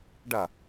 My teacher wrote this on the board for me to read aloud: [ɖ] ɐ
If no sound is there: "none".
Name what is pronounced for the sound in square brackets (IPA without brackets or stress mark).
ɖ